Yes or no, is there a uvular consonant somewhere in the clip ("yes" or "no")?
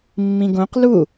yes